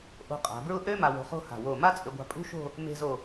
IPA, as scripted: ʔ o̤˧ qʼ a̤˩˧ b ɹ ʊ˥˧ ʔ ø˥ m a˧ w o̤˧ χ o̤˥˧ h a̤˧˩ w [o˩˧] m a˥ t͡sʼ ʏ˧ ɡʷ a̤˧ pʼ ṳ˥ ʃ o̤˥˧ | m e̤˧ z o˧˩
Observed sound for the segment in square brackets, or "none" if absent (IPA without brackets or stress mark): o˧˩